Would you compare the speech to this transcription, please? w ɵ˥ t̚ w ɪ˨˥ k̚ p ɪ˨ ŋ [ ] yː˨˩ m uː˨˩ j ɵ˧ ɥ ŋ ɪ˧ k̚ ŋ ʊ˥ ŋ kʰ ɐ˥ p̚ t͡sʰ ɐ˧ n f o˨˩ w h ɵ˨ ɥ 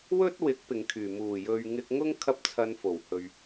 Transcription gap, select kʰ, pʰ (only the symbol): kʰ